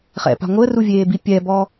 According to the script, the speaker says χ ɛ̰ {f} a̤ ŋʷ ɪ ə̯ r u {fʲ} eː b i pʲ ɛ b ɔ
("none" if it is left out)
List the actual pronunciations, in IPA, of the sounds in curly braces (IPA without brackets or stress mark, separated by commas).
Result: p, vʲ